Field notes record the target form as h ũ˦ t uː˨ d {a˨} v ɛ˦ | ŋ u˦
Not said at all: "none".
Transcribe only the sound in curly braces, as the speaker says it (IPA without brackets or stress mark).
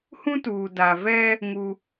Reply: a˨